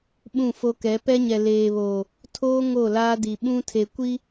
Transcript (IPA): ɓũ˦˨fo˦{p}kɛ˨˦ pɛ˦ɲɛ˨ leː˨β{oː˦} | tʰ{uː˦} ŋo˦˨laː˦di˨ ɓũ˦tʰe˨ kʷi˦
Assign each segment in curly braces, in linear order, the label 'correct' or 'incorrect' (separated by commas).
incorrect, incorrect, incorrect